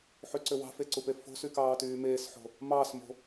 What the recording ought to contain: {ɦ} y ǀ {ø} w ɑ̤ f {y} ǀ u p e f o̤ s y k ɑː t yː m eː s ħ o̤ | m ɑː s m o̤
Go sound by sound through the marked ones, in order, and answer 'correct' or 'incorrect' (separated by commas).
incorrect, correct, incorrect